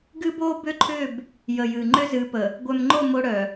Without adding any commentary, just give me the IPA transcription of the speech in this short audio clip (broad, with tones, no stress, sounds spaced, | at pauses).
ɡ ɨ˦ b o˦ b ʏ˦ ǃʰ ʏ˦˨ b | j ə˨ j ɨ˨ ŋ͡ǃ ʏ˦ z ɨ˨˦ p ə˨ | ɡʷ œ˨ m ŋ͡ǃ o˦˨ m o˦ ɽ œ˨